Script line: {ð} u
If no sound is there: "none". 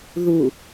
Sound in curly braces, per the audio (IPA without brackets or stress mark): ð